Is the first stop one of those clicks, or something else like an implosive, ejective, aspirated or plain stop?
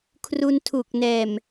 aspirated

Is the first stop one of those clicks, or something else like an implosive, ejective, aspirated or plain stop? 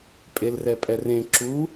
ejective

